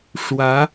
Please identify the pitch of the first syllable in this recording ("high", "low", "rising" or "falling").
rising